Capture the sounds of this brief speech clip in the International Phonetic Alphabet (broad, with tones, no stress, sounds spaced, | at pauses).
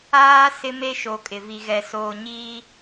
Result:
aː˦ s ɪ˦ m e˦ ʃ o˨ kʼ ɪ˨ v i˨ ɣ ɛ˨ s oː˨ ɲ iː˦